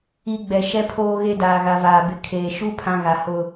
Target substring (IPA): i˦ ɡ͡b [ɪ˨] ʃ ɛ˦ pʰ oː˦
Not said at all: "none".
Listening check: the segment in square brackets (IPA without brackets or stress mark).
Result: ɛ˨